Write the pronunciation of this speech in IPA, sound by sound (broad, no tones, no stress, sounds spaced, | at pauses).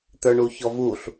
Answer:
t̪ ə˞ ɳ u ç ɔ v u ɬ